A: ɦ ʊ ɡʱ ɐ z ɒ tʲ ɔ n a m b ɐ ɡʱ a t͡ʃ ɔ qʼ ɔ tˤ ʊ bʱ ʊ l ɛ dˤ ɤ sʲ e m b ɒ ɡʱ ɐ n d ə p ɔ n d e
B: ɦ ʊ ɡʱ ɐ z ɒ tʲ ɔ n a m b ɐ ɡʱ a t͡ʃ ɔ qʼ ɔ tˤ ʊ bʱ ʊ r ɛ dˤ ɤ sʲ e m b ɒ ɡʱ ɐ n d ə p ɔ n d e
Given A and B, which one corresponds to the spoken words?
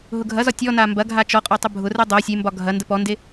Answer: B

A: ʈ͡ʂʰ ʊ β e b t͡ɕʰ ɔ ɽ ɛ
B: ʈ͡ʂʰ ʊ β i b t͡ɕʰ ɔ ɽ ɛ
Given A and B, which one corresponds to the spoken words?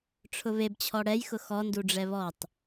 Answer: A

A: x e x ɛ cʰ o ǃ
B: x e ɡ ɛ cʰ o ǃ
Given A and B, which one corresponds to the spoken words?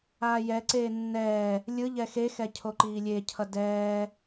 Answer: A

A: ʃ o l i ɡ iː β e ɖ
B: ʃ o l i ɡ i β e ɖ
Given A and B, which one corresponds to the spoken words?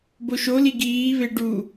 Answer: A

